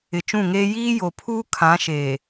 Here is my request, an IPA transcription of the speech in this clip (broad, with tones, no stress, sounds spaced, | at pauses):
ɪ˨ t͡ʃ ũ˦˨ ŋ eː˦ j iː˦ j o˨ pʰ uː˦ kʰ ã˨˦ ʃ eː˨